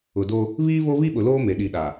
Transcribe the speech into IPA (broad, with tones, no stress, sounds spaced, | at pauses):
ʊ˨ d o˦ | β iː˦ β o˦ β i˦ ɓ ʊ˨ l oː˦ m e˨ ɗ i˨ ɗ a˨